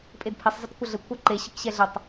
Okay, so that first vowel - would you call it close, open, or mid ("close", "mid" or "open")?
mid